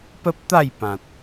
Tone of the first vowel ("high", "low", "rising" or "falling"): high